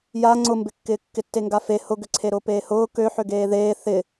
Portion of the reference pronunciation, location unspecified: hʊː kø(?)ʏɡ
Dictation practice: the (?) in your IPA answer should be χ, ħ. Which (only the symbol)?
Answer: ħ